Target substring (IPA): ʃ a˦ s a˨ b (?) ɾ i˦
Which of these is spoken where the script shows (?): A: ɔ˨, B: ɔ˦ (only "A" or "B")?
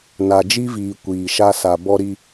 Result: B